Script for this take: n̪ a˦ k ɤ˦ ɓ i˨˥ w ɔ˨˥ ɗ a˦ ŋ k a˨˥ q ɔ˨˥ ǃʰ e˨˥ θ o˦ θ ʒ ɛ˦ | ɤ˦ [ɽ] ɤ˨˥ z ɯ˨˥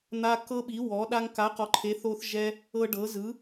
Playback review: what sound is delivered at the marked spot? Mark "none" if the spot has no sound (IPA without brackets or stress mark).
ɖ